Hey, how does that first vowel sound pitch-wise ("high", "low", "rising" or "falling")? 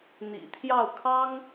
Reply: low